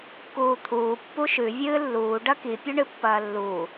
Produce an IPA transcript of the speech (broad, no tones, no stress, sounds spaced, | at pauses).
k uː t̪ʰ uː pː u ʃ ʉ vʲ ɨː lː uː ɖ ɐ k i pʲ ɵ ɳ ɨ pː ɐː lː uː